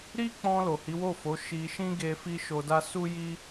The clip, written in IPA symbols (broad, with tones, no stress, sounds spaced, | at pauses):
ɾ i˦ k͡p ɔ̃˧ l o˨ h i˨˦ w o˦˨ f o˨˦ ʃ i˧ ʃ ĩ˦ ɡ e˧ f i˦ ʃ o˧ d a˦ s u˦ j i˦